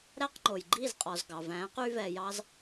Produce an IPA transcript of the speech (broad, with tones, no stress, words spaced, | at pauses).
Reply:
ɾæ˥qŋ͡ǃo˩j ɡ͡ǃi˥˩zqʼɔ˩zɡɑ˩væ̃ː˩˥q y˥vɛ˧jɑ˥z